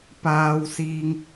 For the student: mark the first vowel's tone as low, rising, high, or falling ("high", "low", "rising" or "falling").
low